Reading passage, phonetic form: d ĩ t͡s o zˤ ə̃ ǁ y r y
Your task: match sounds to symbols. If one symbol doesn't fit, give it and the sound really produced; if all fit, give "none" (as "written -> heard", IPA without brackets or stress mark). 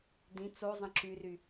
none